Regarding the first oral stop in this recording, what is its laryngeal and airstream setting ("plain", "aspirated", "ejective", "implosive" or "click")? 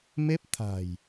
plain